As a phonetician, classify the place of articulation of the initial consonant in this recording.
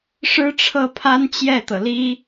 retroflex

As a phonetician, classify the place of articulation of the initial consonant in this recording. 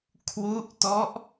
velar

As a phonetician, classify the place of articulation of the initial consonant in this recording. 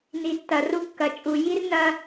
alveolar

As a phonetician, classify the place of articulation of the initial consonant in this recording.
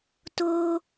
alveolar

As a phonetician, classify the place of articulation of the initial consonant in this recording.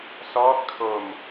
alveolar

